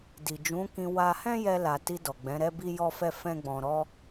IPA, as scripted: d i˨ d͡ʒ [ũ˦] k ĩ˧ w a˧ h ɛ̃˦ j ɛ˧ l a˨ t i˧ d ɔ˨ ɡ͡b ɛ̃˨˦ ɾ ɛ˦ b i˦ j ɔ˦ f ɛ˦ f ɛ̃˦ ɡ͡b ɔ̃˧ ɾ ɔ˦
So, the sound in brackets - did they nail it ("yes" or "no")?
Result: no